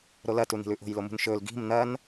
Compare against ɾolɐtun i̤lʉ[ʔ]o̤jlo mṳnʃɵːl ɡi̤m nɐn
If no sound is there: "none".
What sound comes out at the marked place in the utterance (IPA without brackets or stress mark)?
ʔ